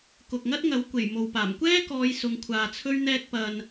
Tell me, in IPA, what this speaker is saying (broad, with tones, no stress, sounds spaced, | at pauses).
k ʊ˨ k̚ ŋ ɐ˥ t̚ ŋ ɐ˨˥ w kʷ e˨˩ j m o˨ w p aː˨˩ m kʷ ɛː˥ k ɔː˨˧ j s ʊ˨˧ ŋ kʷʰ aː˨ t͡sʰ ɵ˥ ɥ n̪ ɛː˧ k̚ p ɐ˨ n